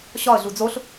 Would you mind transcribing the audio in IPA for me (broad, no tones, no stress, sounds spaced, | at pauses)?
ɕ ɒ ə̯ ɮ u d͡z o ɬ